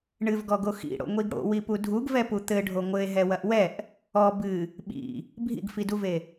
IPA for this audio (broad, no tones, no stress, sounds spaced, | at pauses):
ɳ ɨ v ɡ ɔ ɡ o x ḭ ɽ o̰ ŋʷ i ɡ ɽ o̰ w i p u dʱ u ɡ v ɛ p u t̪ ɘ ɖʱ o ŋʷ ɘ e̯ ɦ ɛ w ɐ ʔ w ɛ ʔ | ɔ b ɨ | ɓ ḭ | bʱ ḭ ɡ f i d u v e